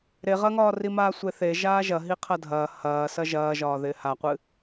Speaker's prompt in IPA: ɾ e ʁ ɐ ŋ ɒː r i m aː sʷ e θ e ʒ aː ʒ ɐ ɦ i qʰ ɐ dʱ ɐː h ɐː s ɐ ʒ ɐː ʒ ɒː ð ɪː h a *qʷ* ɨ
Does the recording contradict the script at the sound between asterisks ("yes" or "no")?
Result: no